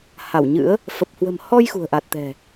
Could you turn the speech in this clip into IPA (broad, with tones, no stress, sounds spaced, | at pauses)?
h a˧˩ w ɲ ɨ̰˧˥ ə̯ | f ə˨˩ p̚ h w ə̤˨˩ m h ɔ˧ j x ṳ˨˩ ə̯ ʔ a˨˩ t̚ t̪ ɛ̤˨˩